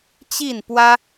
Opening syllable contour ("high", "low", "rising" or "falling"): falling